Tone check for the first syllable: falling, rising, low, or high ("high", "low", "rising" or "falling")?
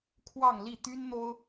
falling